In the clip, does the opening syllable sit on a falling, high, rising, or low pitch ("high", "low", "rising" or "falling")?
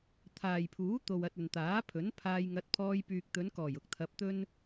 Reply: low